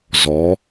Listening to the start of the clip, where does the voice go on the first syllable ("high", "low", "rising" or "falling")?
rising